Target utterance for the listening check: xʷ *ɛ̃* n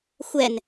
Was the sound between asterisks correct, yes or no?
no